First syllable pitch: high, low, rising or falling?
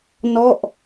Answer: falling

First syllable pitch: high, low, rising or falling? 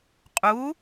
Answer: rising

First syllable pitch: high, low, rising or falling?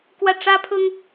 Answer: falling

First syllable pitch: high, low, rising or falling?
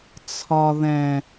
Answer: high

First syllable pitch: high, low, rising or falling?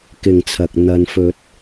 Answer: low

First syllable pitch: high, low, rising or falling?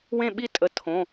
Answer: falling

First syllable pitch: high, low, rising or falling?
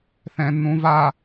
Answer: low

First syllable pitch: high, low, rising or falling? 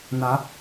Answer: rising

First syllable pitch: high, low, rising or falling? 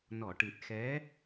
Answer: low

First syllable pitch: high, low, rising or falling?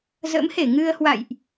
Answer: rising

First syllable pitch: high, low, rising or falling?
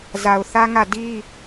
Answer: low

